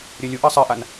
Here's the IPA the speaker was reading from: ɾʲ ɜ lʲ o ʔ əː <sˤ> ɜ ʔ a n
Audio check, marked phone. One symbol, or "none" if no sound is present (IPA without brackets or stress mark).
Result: sˤ